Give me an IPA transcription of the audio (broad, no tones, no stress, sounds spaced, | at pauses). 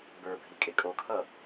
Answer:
b ə˞ bʱ i kʼ e kʼ o kʰ ʌ